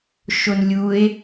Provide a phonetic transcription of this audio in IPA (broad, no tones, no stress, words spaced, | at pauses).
ʃonlʲue̯